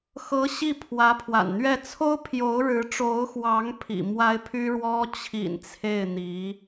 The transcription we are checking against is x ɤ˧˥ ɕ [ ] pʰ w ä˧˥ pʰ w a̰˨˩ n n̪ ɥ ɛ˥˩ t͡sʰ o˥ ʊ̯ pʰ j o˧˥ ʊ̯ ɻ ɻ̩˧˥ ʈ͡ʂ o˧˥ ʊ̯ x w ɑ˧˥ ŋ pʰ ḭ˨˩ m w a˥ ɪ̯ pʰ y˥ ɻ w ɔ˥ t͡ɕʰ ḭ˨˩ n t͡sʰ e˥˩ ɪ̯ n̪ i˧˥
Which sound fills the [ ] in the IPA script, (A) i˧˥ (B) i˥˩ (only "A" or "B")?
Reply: B